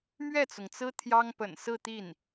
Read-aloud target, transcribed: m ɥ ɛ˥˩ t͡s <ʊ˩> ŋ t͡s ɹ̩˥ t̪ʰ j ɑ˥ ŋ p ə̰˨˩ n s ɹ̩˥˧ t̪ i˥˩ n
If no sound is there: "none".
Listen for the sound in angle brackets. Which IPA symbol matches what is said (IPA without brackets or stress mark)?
ʊ˩